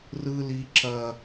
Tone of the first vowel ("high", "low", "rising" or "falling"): high